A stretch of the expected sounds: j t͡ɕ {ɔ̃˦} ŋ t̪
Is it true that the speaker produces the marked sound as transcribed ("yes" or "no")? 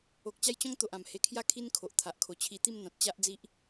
yes